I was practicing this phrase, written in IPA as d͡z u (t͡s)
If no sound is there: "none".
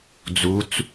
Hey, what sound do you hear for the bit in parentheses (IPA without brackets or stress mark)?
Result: t͡s